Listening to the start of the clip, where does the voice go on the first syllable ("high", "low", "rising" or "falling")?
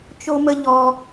high